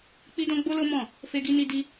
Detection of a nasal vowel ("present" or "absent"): present